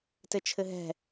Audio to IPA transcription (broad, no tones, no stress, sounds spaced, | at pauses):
t ɘ t͡ʃʰ ɘ ɦ ɛ̤